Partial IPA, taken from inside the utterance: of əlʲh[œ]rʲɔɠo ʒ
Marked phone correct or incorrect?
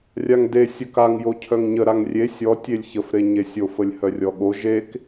correct